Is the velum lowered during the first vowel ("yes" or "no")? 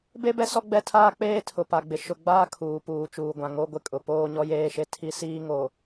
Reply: no